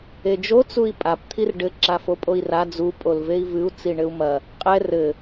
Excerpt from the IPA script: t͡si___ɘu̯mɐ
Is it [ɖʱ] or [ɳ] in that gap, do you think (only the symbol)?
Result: ɳ